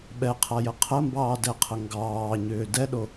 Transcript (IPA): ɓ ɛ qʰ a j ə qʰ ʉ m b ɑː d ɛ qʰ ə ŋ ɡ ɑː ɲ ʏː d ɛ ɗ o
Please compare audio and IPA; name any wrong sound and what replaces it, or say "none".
ʉ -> ə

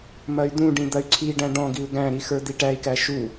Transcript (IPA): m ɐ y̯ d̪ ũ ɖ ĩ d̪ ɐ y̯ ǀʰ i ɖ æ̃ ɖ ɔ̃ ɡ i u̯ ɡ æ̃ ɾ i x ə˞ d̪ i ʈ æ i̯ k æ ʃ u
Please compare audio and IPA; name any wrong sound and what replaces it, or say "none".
none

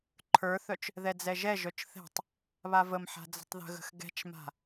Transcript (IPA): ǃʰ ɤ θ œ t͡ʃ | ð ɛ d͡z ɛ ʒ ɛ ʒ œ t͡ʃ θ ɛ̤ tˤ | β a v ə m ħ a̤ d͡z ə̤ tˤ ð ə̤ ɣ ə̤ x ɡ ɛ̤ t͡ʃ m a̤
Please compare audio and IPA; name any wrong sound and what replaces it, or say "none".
ɤ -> ə˞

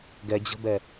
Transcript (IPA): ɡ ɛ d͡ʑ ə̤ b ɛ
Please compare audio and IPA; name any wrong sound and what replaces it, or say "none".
none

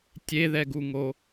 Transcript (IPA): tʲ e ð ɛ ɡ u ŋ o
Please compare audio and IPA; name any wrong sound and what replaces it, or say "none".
none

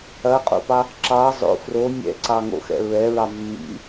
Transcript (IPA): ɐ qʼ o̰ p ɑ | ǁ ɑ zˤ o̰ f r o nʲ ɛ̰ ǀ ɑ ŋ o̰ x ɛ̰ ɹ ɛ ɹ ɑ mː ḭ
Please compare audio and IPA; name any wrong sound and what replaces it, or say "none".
none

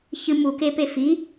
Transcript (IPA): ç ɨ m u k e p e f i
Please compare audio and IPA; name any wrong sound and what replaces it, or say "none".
none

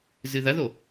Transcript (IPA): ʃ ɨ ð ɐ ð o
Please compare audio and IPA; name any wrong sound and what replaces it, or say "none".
ʃ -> z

